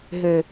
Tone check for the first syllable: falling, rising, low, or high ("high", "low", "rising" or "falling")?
low